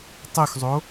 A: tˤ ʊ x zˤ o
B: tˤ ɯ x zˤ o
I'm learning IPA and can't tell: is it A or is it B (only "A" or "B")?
A